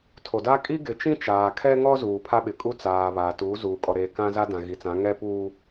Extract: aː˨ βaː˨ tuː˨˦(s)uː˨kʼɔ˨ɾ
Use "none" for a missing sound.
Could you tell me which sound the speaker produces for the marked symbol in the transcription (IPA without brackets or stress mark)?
z